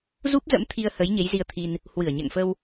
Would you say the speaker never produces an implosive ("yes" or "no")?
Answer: yes